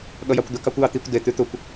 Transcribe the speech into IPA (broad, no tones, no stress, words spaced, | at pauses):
ɠʌjɑkʷd̪ə kɑkʷjɑt̪ikʷ de t̪ʉt̪ʊkʷ